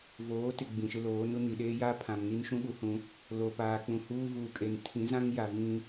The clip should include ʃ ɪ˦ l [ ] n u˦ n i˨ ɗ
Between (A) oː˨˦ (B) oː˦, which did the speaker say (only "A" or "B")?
A